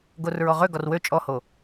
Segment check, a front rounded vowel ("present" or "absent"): present